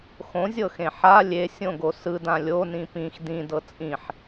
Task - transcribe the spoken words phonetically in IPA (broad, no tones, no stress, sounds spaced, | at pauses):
x õ zʲ ɤ x ẽ ħ a lʲ e sʲ õ ɡ o s ɯ d ã lʲ o n ĩ p ĩ x d ĩ d ɤ t͡sʼ ĩ ħ